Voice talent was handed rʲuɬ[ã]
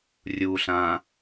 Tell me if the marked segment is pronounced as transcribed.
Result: yes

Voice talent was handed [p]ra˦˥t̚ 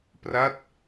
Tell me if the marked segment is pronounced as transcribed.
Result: yes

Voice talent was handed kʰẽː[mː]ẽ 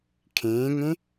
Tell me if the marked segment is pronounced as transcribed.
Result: no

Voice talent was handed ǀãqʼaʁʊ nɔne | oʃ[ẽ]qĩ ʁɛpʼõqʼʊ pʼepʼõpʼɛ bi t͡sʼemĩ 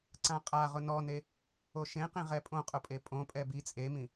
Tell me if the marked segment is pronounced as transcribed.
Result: yes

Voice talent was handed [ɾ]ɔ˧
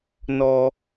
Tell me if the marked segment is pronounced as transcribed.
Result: no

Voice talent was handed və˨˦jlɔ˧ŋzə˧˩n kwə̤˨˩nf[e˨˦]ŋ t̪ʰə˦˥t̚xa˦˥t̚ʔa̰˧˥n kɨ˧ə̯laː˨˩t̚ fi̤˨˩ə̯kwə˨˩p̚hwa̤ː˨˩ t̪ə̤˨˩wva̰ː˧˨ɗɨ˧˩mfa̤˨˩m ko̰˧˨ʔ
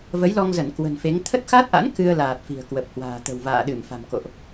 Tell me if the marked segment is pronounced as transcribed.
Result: yes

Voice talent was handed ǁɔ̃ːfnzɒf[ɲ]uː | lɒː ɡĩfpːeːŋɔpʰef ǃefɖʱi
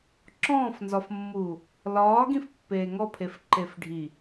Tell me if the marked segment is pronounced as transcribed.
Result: no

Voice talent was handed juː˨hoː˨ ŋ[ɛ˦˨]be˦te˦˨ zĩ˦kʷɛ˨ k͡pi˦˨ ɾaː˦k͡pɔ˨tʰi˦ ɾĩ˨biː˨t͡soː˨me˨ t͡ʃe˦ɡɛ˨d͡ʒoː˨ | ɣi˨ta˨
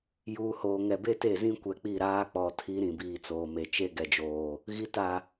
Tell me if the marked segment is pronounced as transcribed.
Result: no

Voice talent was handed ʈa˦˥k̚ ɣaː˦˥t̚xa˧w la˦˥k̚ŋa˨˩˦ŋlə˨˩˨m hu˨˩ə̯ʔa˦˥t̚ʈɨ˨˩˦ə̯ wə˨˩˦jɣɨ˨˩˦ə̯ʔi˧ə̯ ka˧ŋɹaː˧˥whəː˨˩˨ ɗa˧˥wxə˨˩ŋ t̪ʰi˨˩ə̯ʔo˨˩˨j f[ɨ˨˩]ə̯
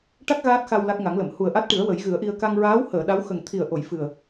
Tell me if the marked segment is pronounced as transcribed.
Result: yes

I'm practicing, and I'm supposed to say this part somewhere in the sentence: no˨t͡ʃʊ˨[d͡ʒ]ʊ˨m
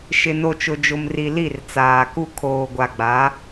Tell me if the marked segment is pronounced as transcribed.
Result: yes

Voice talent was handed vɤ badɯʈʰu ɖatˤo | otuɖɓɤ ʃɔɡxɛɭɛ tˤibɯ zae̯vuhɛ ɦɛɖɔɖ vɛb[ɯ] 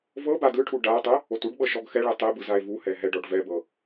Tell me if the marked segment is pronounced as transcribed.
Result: no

